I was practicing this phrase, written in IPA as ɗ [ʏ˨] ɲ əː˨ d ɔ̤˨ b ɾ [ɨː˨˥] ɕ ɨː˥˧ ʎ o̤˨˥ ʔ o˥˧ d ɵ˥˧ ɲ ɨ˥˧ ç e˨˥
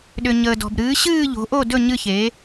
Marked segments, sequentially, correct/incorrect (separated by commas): correct, correct